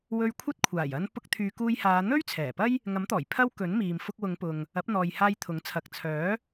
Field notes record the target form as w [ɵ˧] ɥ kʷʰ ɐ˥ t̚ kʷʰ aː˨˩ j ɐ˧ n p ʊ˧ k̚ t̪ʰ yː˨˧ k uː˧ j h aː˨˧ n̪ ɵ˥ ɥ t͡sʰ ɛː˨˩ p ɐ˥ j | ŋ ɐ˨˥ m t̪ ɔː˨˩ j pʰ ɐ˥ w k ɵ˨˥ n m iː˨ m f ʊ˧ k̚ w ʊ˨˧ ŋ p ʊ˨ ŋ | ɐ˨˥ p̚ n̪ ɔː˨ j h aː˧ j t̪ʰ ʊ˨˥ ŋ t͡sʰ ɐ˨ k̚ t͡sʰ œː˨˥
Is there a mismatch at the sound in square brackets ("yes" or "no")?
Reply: no